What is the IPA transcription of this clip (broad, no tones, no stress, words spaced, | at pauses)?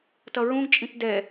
tʌɹũɡt͡ʃʼĩt dɛ